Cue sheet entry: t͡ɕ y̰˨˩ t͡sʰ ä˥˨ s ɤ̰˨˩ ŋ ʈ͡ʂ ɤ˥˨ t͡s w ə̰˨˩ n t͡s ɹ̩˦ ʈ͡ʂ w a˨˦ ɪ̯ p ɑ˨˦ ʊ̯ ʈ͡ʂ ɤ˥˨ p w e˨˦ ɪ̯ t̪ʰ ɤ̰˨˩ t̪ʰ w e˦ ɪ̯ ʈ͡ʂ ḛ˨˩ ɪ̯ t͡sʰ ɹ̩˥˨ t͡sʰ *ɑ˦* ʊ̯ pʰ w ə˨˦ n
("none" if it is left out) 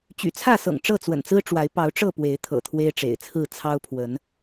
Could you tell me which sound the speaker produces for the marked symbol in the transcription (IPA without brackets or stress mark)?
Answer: ɑ˦